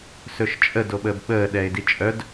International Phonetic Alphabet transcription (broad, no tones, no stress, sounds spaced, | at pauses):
s ɵ ʃ t͡ʃʼ ə d o ɓ əː b ɓ əː ɗ ɛ ɪ̯ d i t͡ʃʼ œ d